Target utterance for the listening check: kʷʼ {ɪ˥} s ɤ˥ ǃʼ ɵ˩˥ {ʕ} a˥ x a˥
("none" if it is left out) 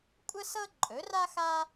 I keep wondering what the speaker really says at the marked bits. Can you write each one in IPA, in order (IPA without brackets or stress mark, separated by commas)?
ə˥, r